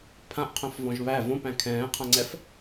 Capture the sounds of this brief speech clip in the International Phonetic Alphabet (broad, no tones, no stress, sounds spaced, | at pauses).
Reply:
pʰ ã ʔ qʰ œ̃ f v ɔ̃ ʒ β æ v õ p æ̃ kʰ ɛ̃ː qʰ ã ŋ͡ǀ ɛ f